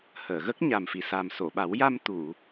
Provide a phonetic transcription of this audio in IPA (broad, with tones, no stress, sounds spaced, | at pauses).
h əː˨˩˨ ɣ ə˦˥ k̚ ɲ a˨˩ m f i˨˩ s a˨˩ m s o˨˩˨ ɓ a˨˩˦ w j a˧ m t̪ u˨˩˨